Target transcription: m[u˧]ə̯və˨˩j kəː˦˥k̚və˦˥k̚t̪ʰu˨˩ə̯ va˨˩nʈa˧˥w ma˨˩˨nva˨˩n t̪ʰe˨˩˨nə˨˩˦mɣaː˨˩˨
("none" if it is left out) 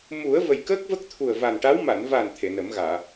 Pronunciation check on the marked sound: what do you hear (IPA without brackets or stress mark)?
u˨˩˦